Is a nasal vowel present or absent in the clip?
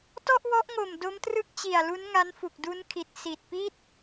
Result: absent